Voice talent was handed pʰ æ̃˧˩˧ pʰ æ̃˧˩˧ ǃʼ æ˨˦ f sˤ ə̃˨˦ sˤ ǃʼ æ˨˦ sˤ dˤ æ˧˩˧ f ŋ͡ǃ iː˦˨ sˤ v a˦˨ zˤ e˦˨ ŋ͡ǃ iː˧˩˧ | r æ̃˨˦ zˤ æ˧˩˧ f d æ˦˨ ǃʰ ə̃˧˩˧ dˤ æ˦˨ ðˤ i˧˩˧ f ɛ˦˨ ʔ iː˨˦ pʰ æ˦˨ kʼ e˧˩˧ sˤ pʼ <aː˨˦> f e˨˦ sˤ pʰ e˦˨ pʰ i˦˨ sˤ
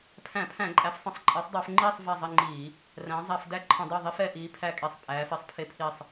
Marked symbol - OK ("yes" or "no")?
no